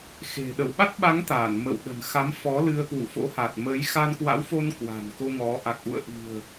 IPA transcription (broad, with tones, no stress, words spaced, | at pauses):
xe̤˨˩ ɗə˧˩wɓa˦˥t̚ɓa˨˦ŋ t̪a˧˩n mə̰˧˨w ɗə̤˨˩nxa˨˦mfɔ˨˦ lɨ˧ə̯kwṵ˧˨fo̰˧˥ha˨˩t̚ mə˨˦j xa˧nkwa̰˧˥wfo˧n kwa̤˨˩nko˧ŋɔ˨˦ ʔa˨˩k̚ʔṵ˧˨ə̯ʔi̤˨˩ə̯